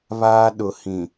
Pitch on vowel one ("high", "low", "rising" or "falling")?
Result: high